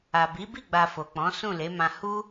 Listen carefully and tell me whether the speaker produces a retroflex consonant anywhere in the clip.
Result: no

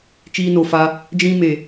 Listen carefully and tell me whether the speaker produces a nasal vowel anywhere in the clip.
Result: yes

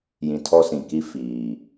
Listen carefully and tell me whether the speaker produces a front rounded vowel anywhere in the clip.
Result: no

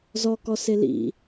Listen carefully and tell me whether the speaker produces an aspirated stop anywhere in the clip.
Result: no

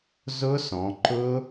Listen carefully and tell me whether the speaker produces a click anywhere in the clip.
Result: yes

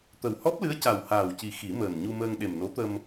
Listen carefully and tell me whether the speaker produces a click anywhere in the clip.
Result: no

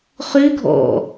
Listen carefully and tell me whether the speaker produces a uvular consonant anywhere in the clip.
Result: yes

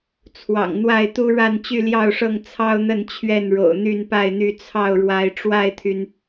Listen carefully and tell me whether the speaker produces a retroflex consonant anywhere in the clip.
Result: yes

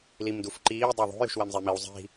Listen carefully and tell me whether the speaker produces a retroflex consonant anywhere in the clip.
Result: no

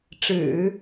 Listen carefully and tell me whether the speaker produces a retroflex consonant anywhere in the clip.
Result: yes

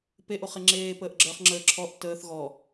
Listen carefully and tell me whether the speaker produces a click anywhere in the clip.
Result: yes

